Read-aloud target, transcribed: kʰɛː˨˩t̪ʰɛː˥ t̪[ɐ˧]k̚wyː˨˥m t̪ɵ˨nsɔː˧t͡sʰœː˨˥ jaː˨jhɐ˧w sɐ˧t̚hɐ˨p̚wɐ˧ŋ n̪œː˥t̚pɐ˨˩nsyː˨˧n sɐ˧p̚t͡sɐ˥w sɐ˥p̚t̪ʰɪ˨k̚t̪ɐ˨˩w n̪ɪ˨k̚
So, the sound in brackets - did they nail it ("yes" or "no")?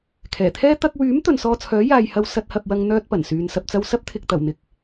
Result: yes